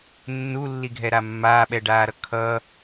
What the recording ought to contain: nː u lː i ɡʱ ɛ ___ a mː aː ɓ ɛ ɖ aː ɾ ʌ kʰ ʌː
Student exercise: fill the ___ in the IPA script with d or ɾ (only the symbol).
ɾ